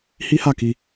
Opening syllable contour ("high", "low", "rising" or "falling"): high